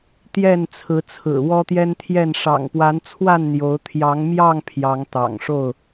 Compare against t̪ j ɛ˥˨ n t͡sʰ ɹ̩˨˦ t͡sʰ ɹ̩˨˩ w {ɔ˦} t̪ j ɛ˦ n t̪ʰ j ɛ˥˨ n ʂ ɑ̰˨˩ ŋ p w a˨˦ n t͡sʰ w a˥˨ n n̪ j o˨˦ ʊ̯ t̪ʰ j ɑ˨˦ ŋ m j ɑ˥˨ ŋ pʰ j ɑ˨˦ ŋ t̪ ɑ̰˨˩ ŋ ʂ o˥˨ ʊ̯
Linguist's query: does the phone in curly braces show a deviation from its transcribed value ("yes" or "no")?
no